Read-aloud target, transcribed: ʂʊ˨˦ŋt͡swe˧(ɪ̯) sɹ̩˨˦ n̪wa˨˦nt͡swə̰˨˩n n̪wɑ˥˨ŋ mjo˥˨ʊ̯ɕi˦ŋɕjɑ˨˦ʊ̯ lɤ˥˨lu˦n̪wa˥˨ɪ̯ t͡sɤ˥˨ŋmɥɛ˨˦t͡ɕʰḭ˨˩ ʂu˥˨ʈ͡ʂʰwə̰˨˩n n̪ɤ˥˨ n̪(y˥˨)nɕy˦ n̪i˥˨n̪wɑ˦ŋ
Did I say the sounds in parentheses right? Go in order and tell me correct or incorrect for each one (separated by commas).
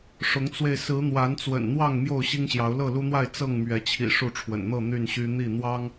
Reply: correct, correct